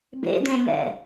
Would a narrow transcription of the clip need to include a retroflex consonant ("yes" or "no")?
no